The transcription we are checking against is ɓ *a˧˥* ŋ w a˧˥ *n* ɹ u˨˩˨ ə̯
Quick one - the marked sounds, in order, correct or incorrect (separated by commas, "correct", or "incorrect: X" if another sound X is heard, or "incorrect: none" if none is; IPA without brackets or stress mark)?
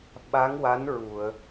correct, correct